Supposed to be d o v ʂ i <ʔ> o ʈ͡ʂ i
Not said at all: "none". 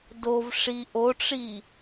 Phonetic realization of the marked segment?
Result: ʔ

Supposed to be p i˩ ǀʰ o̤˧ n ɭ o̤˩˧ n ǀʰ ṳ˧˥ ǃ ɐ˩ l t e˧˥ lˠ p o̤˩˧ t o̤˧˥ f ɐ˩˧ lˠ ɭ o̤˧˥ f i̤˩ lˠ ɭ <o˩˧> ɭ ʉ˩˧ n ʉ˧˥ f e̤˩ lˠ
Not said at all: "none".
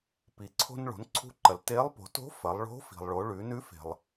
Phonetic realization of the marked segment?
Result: o˩˧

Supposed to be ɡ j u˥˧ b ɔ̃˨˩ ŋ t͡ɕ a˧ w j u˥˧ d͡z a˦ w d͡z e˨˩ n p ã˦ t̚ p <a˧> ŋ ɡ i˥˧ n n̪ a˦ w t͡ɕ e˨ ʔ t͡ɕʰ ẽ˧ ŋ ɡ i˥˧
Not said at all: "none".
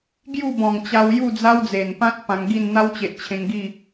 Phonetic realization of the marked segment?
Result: ã˧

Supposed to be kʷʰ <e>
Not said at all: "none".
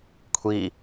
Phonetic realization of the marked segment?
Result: i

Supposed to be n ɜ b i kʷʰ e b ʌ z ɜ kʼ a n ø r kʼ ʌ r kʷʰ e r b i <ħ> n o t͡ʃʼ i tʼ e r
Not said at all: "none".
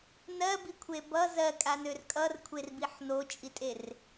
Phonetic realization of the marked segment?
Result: ħ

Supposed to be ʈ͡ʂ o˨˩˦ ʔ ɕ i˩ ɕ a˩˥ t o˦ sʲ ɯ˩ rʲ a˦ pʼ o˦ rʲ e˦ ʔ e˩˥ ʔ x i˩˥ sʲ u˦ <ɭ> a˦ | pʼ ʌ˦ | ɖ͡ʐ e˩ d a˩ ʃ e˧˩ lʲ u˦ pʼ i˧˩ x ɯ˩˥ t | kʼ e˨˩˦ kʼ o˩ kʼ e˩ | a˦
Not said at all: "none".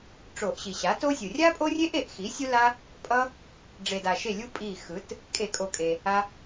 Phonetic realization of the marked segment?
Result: l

